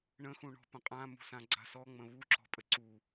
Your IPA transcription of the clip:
ɳ ə̃ x ũ ɳ ɔ̤ p ə̃ qʼ ã m ṳ s ã ɡ͡ǀ a̤ s ɔ ŋ͡m ə̃ β u ǁ ɔ̤ pʼ ə ǀ u

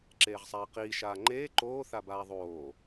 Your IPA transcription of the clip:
ǁ eː ʁ sˤ aː q iː ʃ aː ŋ͡ǃ eː ǃ oː θ a b aː ðˤ oː

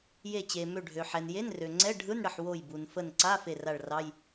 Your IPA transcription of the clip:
j e˧˩ t͡ɕ e˩ m ø˧˩ ɖʱ ø˩ ħ ɛ˩ n j e˧˥˧ n r ø˩ ŋ͡ǀ ɛ˧˥˧ ɖʱ ɯ˧˥˧ n ɽ ə˧˩ ħ w o˧˩ j b u˩ n f ə˧˩ n ǀ a˧˥˧ f e˧˩ r a˧˩ ɭ r ɑ˧˥˧ j

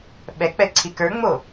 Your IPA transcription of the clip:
ɓ ɛ k͡p ɛ ǀʰ i k ə˞ ŋ͡m o

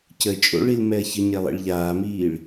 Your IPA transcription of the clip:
c ə t͡ʃʼ o̰ ɭ i l m ɛ ɐ̯ ç ə ɲ e lˠ ḭ ɭ ʎ aː m iː ɭ

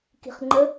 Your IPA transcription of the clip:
k i̤ χ ŋ͡ǃ ə

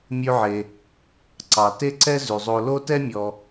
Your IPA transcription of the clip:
mʲ ʉ˧ ʕ e˩ | ǀ ɑ˩ t e˥ ǀ ɛ˥ z ʉ˩ zˤ o˧ l o˥ t ɛ˥ mʲ ɔ˩

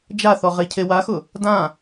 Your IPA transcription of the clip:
d͡ʒ a θ ɔ ʁ e cʰ e w a x ʊ | d ã

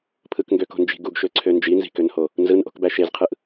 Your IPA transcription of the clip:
pʰ ɯ k ŋ ɡ ø k o̤ n d͡ʒ i̤ ɡ u ɡ ʃ ø ǀʰ ø n d͡ʒ i n z i̤ k ø n h o | n z ɯ n ʔ o̤ k b æ ʃ e z qʰ ɯ ʔ

